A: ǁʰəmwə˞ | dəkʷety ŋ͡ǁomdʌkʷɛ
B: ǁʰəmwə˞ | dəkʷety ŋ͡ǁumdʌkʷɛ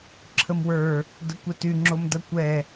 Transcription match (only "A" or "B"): A